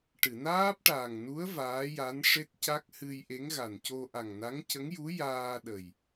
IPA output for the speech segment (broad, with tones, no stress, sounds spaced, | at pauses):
ʈ ɨ˨˩˨ n aː˦˥ p̚ ʈ aː˨˩ ŋ n u˧˥ ə̯ v aː˧˥ j a˧˥ n ʂ e˦˥ t̚ c a˦˥ k̚ h ɨ˧ j ʔ e˧˥ ŋ ɣ a˨˩ n c o˧ ʔ a˨˩ ŋ n a˧˥ ŋ c ə˧˥ ŋ j u˧˥ j aː˧ ɗ ə˨˩ j